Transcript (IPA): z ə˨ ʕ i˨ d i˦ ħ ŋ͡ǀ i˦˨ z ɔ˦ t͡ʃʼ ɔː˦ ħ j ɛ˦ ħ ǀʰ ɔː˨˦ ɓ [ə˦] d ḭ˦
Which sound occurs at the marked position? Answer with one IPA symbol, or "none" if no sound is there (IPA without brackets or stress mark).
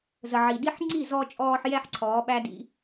æ˦